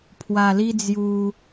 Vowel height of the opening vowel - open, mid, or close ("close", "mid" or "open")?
open